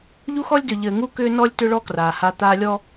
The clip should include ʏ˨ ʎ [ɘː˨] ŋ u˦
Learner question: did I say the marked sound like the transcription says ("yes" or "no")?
yes